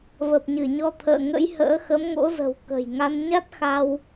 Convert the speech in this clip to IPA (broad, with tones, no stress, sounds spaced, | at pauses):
v ə˨˩ p̚ ɲ ɨ˧˩ ɲ ɔ˧ t̪ʰ ə̰ː˧˨ ŋ ə̰˧˥ j h ə̰ː˧˥ x ə˨˦ m ŋ o̰˧˥ z ə̤˨˩ w k ə̤˨˩ j ŋ a˧ n ɲ a˦˥ t̚ x a˧ w